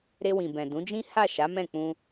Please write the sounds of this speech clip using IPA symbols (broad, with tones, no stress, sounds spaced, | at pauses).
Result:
ɾ e˧ w ĩ˨ b ɛ̃˨ d ũ˨˦ d͡ʒ ĩ˦ h a˦˨ ʃ a˨˦ m ɛ̃˦˨ k͡p ũ˧